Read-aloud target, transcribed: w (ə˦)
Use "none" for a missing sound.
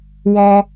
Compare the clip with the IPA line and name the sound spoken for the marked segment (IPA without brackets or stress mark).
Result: ɔ˦